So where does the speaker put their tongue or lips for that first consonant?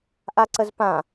throat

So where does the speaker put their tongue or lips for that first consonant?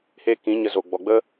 throat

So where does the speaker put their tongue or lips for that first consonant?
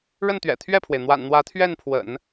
retroflex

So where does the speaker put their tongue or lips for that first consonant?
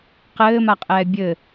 uvula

